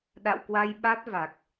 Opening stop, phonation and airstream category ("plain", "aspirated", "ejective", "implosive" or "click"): implosive